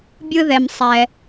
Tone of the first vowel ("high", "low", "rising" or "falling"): high